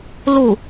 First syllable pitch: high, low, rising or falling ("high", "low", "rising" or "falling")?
falling